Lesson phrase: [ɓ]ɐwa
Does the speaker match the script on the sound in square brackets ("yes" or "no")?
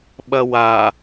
yes